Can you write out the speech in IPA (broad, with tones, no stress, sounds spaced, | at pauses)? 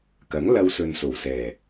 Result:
k ɐ˨˥ ŋ l ɐ˧ w s ɵ˨ n s o˨˩ w s ɛː˨˩